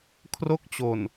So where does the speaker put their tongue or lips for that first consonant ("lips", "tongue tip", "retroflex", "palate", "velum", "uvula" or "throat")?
velum